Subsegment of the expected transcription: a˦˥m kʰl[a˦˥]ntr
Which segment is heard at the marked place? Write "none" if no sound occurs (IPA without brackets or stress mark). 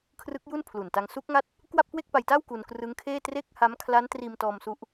a˦˥